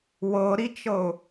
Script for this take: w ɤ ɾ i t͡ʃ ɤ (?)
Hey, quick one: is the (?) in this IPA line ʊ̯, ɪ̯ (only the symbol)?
ʊ̯